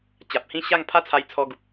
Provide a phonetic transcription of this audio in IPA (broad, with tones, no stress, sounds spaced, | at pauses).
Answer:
t͡ɕ a˨ p̚ h ĩ˥˧ ɕ a˥˧ ŋ pʰ a˥˧ t͡sʰ a˧ j t͡sʰ ɔ˧ ɡ u˨ p̚